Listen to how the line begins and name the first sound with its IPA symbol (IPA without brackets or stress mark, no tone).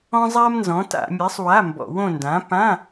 ɔ̃